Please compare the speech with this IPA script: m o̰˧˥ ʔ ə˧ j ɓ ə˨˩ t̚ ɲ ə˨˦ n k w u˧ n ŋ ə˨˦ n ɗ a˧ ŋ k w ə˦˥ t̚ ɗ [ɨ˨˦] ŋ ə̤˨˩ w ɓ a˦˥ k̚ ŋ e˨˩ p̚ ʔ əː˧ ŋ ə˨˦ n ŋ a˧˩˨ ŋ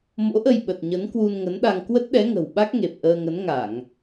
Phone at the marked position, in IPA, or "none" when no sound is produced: ɛ˨˦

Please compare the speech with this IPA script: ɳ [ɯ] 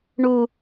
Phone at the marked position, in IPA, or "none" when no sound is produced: u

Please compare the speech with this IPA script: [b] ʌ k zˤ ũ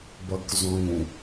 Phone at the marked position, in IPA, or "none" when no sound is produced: b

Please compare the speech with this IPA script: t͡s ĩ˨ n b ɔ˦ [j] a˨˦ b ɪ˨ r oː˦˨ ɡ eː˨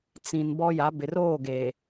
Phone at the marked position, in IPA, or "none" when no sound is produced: j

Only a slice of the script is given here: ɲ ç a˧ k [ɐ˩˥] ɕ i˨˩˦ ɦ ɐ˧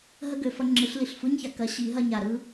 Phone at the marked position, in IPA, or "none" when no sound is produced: ɐ˩˥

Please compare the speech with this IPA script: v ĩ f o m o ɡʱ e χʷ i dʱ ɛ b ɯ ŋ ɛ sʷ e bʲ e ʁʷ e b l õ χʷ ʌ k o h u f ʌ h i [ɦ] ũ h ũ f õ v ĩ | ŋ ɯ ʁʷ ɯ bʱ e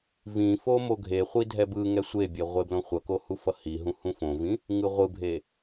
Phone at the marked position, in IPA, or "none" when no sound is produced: ɦ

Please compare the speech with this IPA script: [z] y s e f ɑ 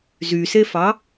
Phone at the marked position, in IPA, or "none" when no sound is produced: z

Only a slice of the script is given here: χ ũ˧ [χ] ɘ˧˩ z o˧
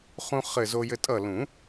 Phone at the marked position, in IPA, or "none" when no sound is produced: χ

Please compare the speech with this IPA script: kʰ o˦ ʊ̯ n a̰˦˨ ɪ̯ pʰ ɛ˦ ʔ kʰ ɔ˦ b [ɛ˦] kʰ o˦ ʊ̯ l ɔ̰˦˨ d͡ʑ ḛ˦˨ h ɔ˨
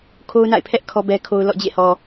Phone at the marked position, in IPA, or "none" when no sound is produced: ɛ˦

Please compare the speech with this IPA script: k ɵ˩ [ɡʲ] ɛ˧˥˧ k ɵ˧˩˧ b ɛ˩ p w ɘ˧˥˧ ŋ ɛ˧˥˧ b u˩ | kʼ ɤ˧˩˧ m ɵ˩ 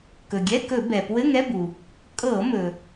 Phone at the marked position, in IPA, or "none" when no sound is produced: ɡʲ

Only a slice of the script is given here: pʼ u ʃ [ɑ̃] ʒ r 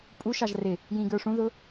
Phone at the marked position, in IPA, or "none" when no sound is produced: ɑ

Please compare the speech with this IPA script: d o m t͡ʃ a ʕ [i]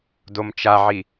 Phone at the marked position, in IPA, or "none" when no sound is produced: i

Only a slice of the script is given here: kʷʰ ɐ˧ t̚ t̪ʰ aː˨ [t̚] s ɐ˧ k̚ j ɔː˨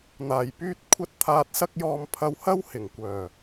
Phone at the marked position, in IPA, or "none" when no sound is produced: t̚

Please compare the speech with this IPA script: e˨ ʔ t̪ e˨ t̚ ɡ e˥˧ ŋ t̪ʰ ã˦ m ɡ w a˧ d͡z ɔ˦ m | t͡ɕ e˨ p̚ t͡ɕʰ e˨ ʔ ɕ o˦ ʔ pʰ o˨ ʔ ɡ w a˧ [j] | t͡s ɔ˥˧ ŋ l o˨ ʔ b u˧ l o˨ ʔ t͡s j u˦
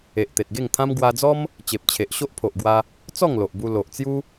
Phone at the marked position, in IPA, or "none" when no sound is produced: none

